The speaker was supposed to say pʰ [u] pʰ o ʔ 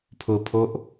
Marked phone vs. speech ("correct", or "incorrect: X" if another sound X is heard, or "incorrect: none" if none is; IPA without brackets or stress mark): incorrect: ʊ